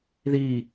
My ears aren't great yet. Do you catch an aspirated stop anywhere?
no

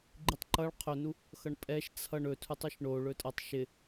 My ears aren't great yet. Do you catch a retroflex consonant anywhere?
yes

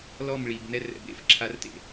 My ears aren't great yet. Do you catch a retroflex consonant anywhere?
yes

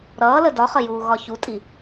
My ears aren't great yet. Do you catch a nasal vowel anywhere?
no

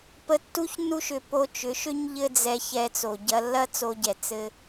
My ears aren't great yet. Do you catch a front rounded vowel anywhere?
yes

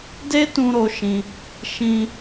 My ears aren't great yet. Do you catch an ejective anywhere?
no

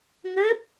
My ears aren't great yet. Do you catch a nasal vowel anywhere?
no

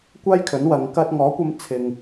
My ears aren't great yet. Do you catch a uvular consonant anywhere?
no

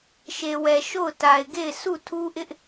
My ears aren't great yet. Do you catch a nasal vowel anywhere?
no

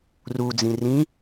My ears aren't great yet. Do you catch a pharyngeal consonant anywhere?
no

